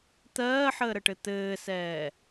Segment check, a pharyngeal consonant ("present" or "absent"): present